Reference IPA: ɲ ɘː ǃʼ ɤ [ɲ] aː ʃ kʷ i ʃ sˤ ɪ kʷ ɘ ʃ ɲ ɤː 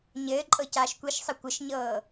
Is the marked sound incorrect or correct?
incorrect